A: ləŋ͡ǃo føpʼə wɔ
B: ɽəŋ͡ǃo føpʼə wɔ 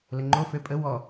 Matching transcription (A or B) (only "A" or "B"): A